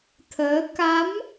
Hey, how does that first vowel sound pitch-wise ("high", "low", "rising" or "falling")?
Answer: rising